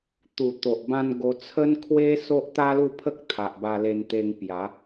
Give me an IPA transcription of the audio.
t̪ u˨˩ t̪ o˨ ʔ b ã˧ n ɡ o˧ t͡sʰ ə˦ n kʰ w e˦ s o˦ ʔ t̪ a˦ l u˥˧ pʰ ə˦ k̚ t̪ʰ a˨ ʔ b a˧ l e˧ n t̪ e˧ ŋ p j a˨˦

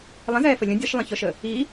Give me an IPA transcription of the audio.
lˠ ə̃ z ɛː f ə lʲ ə̃ dʲ ʌ ʃ lˠ ə̃ ç ɔ ʃ ə | i

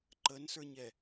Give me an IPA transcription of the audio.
ǃ ə n s ə˞ ɲ ɛ

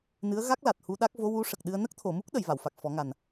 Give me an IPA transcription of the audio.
n ɨ˧˥ ə̯ ɣ a˦˥ k̚ l a˨˩ t̚ h u˧ ɗ a˦˥ k̚ v o˧˥ w u˧˥ ʂ ə˨˩ k̚ ɗ ɨ˧ ə̯ n ə˦˥ k̚ t̪ʰ o˨˩˨ m u˦˥ k̚ ɗ ə˨˩˨ j v a˨˩˨ w f a˨˩ k̚ f ɔ˨˩˦ ŋ a˨˩ n

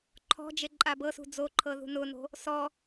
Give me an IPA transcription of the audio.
ǃʰ ɔ̤ d͡ʒ e ǃʼ a b ɤ s ṳ d͡z o ǃʰ ɤ ð ṳ n ʊː n o̤ | s ɔ

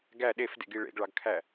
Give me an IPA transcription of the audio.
ɡ æ ɗ e f d ḛ ɡ i ɭ ḛ ɡ ɭ ɑ ɡ kʰ æ

